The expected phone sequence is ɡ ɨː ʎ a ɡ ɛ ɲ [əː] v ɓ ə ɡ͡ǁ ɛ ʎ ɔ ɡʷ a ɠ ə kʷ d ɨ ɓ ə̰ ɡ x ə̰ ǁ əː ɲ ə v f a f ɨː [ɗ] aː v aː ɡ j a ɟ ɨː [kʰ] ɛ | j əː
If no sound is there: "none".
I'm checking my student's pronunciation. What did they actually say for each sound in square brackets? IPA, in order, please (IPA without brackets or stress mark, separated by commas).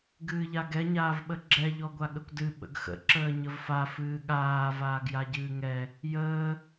aː, ɠ, ŋ